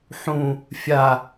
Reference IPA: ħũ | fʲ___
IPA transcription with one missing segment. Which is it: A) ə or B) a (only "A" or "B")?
B